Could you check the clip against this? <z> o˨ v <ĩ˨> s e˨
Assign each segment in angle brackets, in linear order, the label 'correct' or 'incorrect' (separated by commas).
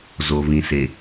correct, correct